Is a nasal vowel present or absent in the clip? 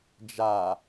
absent